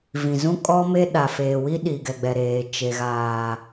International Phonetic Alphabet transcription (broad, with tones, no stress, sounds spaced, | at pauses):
v ĩ˨ z ũ˦ kʼ ɔ˦ m e˦ ɗ a˨ f eː˨ w i˦ ɗ i˨ ɡ ɛ˨ ɡ͡b ɛ˨ ɾ eː˨ t͡ʃ e˨ ɣ aː˨